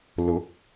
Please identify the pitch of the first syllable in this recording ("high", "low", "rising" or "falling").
rising